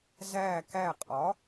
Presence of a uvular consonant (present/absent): present